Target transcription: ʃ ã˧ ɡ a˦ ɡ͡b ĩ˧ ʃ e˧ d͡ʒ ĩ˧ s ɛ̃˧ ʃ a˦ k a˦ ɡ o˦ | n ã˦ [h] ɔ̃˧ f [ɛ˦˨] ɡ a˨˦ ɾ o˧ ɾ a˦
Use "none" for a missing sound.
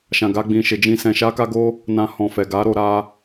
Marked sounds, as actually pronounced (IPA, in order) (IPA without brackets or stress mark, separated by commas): h, ɛ˨